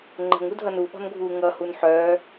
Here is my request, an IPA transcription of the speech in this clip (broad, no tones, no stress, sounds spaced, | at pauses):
ŋ͡ǃ ə̤ ŋ u dʱ ʌ n u ɓ ɔ̤ n ɡʱ uː ŋ ʌ h u n ħ œː